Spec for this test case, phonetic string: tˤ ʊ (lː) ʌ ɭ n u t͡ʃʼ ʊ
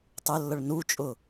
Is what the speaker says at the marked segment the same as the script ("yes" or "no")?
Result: yes